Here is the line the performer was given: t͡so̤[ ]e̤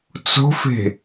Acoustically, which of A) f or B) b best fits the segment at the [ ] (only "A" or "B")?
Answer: A